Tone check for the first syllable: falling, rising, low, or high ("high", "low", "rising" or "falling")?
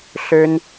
high